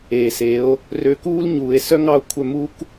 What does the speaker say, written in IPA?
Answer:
eː˨se˨˦o̯ | rø˧kuː˦l ɲuː˨e̯ sœ˦ŋɑ˦o̯ kʷʰœ˧mu˦k

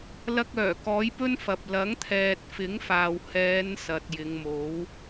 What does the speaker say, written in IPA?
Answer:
lɐ˧k̚ œː˨˩ kɔː˨˥jpɵ˥nfɐ˨p̚ lɐ˨˥ŋt̪ʰɛː˨t̚fɪ˨˥ŋfaː˨w hɛː˨˧n sɐ˨t̚jɪ˨˧ŋmo˨˥w

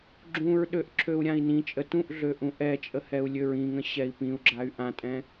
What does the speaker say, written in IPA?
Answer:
ɡ͡ǁũɹɗøʔ ǁʰøu̯ɾʲãi̯nĩt͡ʃʼə tũʔɮø ʔũʔɛt͡ʃʼə hɛu̯lʲøɹĩŋə̃ ɕɛi̯pĩu̯ɡ͡ǁay̯ ʔãtʼɛ̃

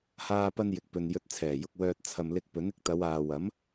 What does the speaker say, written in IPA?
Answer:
haː˧pɐ˧n jɪ˨k̚pɵ˨n jɵ˨˥t̚t͡sʰɛː˨˩jʊ˨k̚ wœː˧t̚ t͡sʰɐ˨m lɪ˧k̚ pɵ˨˥nɪ˧k̚t̪ɐ˨˧waː˨ wɐ˨˥m

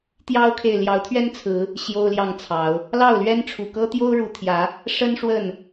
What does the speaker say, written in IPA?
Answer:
t̪jɑ˦ʊ̯kʰe˨ɪ̯ ljɑ˨˦ʊ̯t̪ʰɥɛ˦nt͡sʰɹ̩˨˦ | ɕjo˦ʊ̯ljɑ˥˨ŋt͡sʰɑ˨˦ʊ̯ | lɑ˥˨ʊ̯lɥɛ˦nʈ͡ʂʰu˨˩kɤ˦ t̪jo˦ʊ̯ɻu˨˩t̪ʰjä˨˦ | ʂə˦n ʂwə˥˨n

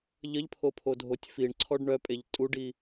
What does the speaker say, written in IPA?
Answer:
ʎəʎpʰopʰodʱotʲ fiɳǀʰɔɖ ɳœpʼeʎ tʼuɖi

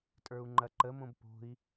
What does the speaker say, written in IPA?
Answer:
tʼə˞u̯ŋ͡ǃɐǃəmõb po̤i̯

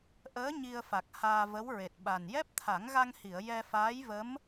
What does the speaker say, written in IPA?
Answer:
ʔəː˧˥ ɲi˧ə̯fa˨˩k̚haː˧ və˧˥wɹe˨˩t̚ɓa˨˩n jɛ˦˥p̚t̪ʰa˨˩˦ŋɣa˧ŋhi˨˩˨ə̯ jɛ˧faː˧˥jvə˧˥m

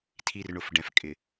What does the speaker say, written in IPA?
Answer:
tʰi˨r ɳʊ˨fɖɛ̃˨f kʼɪ˨

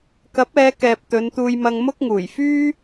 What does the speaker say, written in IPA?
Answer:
kɐ˨˥p̚ɛː˨˧kɛː˨p̚ t̪ɵ˨˧nt̪uː˧jmɐ˧ŋ mʊ˥k̚ŋuː˨˩j fyː˥

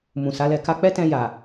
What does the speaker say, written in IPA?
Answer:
mũ˨sa˨˦lɛ˧ ka˧k͡pɛ˦tɛ̃˧ja˨

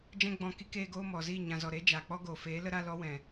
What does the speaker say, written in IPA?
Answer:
d͡ʒɛ̃˦ɡ͡bɔ̃˧ki˧keː˧ ɡoː˦ mɔ˨ziː˦˨ ɲã˨zɔ˨ɾe˨˦ d͡ʒaː˨k͡pɔ˦ɡoː˨ feː˨˦lə˦ɾa˦ lɔ˧wɛ̃˨

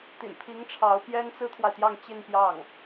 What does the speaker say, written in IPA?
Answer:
t̪ḭ˨˩npʰi˧˥ŋ ʈ͡ʂʰɑ˧˥ʊ̯ pjɛ˥n t͡sɹ̩˥t̪ʰwa˨ɪ̯t̪jɑ˥˧ŋ t͡ɕi˥˧npjɑ˥˩ŋ

